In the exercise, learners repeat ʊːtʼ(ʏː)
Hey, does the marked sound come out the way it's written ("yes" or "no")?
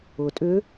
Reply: yes